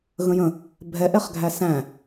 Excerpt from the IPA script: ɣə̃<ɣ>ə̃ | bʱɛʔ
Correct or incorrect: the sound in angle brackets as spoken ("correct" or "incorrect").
incorrect